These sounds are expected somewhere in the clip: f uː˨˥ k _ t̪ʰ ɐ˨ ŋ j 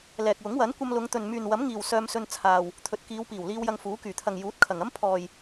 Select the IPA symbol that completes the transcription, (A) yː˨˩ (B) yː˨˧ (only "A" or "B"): A